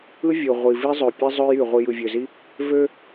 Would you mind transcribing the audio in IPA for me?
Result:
ɯ˦ vʲ o˨ ʁʷ i˨ v i˦ zˤ ø˨ pʲ e˦ zˤ ø˦ j y˨ ʁʷ i˨ j ɯ˨ vʲ ø˨ z i˦ | v ø˦

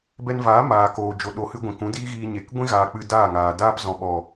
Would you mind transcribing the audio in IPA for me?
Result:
b ɛ˧ n v aː˨˦ m aː˨ k oː˨ d͡ʒ o˨ ɗ o˨ h ɨ˧ ɡʷ ĩ˨ k ũ˨˦ d iː˦ ɣ iː˧ ɲ e˨ k ɡʷ ĩ˦ ɣ aː˨ k͡p ɨ˧ d aː˦˨ ŋ aː˨ d aː˦ p z ɔ̃˨ ɓ ɔ˨

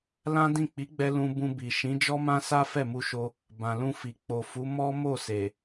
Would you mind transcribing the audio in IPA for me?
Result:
l ã˦ d ĩ˦˨ k͡p i˨˦ ɡ͡b ɛ˧ l ũ˧ b ũ˧ b i˨ ʃ ĩ˨˦ d͡ʒ ɔ˦ m ã˦ s a˦ f ɛ˦˨ m u˧ ʃ o˧ | b ã˨ l ũ˧ f i˨ k͡p o˨ f u˨˦ m ɔ˦ m o˦˨ s e˨

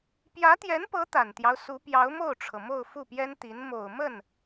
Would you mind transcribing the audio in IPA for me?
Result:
p j ä˧˥ t̪ j ɛ˧˥ n p ɤ˧˥ t̪ a˨˩ n t̪ j ɑ˦ ʊ̯ s u˧˥ p j ɑ˧˥ ʊ̯ m o˥˩ ʊ̯ ʈ͡ʂʰ ɤ˩ m o˥˧ ʊ̯ f u˥˩ p j ɛ˥ n t̪ i˧˥ n m o˨˩ ʊ̯ m ə˥˩ n

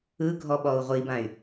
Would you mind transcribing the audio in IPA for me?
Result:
ɯ ɡʱ ɔ ɓ ɔ u̯ ʁʷ i b ã y̯

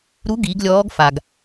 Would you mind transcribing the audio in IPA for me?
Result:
ɾ u˧˥ ɡ i˩˧ ɡ lʲ ɔː˧˥ ɡ f a˩ ɡ

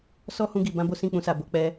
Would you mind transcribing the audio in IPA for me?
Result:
s ɔ˦ h ũ˧ ɡ i˨ b ã˨˦ b o˦ s ĩ˦˨ k͡p ũ˧ s a˨ b o˨˦ k͡p ɛ˧

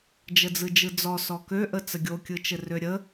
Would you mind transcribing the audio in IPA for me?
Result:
d͡ʒ ə d͡z ɯ d͡ʒ ɯ d͡z ɔ s ɔ k ø ʔ ə t͡s ə ɡʲ o kʲ ɯ t͡ʃ ɘ r ø ɾʲ ə

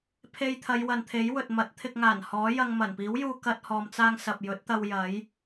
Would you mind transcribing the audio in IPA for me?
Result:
pʰ e˧ j t̪ʰ ɐ˨˧ j w ɐ˨ n t̪ʰ e˨˥ j w ɵ˨ t̚ m ɐ˨˥ t̚ t̪ʰ ɪ˧ k̚ ŋ aː˨˩ n h ɔː˨˥ j ɐ˧ ŋ m ɐ˨˩ n p iː˨˥ w j uː˧ k ɐ˥ t̚ h ɔː˧ m t͡s aː˥ ŋ s ɐ˨ p̚ j ɵ˨˥ t̚ t̪ ɐ˧ w j ɐ˨˥ j

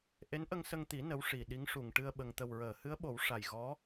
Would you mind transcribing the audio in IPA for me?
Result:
ʔ e˧˥ n ʔ ə˧ ŋ s ə˧ ŋ t̪ i˨˩˦ n ə˧˥ w ʂ i˨˩ ɗ i˧˥ ŋ ʂ u˨˩ ŋ ʈ ɨ˧ ə̯ ɓ ə˨˩ ŋ t̪ ə˨˩ w ɹ əː˨˩˨ h ɨ˧˥ ə̯ ɓ o˨˩˦ w ʂ a˨˩ j ɣ ɔ˧˥

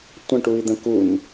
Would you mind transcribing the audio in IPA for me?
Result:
tʷ ə̃ ʈ u i̯ d̪ ə̃ k u n

